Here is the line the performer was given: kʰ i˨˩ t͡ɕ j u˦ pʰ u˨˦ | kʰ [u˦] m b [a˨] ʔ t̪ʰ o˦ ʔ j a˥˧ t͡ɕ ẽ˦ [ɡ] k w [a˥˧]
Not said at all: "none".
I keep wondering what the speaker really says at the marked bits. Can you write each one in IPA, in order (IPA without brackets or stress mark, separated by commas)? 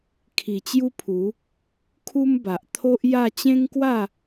u˦, a˨, ŋ, a˥˧